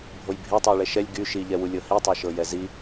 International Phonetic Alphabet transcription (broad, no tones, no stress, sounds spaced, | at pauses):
bʱ o j bʱ e tˤ ɤ j ɭ ɛ ʃ ɛ lʲ ɡ y ʃ i ʎ ɛ w u lʲ ɤ h i tˤ ɤ ʃ ɤ j ɛ z i